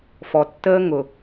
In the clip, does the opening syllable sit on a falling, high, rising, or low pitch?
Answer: low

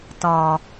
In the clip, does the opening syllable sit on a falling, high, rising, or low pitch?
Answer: low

